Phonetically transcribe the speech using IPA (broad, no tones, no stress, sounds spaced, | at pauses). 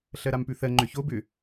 ɬ ɜ ɾ a m p ʉ θ ɜ ŋ͡ǃ ʏ ç o b ʏ